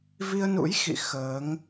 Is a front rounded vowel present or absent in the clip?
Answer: absent